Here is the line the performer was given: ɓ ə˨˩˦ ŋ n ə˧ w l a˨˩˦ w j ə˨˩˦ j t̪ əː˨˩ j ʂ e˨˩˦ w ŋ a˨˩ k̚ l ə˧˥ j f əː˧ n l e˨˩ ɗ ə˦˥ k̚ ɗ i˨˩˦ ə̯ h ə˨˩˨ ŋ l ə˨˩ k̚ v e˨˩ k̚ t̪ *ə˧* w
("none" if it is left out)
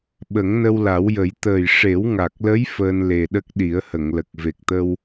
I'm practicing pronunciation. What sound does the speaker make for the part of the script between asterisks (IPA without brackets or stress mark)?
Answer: ə˧